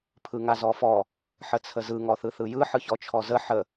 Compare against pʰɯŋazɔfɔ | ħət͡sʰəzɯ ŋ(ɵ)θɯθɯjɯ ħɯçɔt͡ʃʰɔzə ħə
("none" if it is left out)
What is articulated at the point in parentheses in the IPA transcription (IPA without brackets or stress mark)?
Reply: ɔ